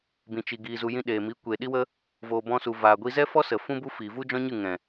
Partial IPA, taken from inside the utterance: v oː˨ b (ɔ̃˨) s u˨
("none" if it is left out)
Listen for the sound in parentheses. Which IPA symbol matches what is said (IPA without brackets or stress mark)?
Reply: ɔ̃˧